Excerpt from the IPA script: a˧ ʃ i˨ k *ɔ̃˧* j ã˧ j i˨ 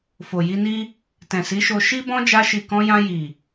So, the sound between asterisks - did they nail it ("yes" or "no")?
yes